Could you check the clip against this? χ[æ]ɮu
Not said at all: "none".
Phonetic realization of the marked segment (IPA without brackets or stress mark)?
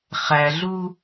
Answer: æ